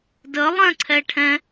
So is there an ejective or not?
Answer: no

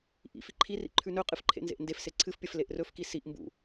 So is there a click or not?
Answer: yes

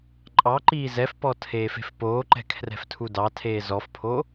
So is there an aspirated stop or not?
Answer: yes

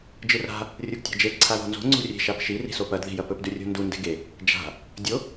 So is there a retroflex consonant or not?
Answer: no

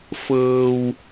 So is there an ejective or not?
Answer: no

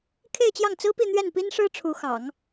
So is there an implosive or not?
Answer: no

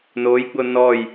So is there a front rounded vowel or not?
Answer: no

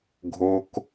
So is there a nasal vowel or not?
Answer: no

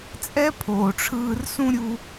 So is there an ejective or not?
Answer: yes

